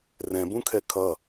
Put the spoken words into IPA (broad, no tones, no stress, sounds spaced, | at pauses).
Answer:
r ɛ̃ b ũ kʰ ɛ kʰ ʌ